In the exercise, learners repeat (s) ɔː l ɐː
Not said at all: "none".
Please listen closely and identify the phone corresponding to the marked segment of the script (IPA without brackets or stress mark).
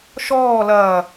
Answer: ʃ